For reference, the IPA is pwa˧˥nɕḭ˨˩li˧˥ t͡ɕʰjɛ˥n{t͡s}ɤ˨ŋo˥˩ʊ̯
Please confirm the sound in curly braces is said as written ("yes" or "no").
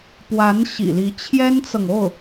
yes